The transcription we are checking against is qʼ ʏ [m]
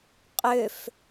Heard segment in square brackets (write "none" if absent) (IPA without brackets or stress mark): f